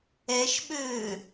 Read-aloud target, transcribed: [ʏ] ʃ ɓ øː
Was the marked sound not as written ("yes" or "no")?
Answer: yes